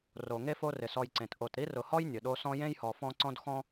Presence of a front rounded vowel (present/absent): absent